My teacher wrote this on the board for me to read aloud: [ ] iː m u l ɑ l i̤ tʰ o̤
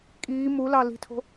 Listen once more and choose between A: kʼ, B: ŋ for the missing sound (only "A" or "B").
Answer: A